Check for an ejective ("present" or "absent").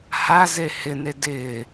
absent